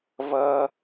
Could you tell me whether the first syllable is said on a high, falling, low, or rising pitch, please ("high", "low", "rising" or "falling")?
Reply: high